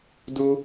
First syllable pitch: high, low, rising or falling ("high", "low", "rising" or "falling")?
high